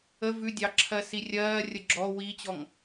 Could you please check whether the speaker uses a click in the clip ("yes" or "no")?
yes